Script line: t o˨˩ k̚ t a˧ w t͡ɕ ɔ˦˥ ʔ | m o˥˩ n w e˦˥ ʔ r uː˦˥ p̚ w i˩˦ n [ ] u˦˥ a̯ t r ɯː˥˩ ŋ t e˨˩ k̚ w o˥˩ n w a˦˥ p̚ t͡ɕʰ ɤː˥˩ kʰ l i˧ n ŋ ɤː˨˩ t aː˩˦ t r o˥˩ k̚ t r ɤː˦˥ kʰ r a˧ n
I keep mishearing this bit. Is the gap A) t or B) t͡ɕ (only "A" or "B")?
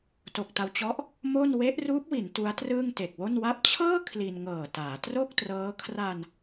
A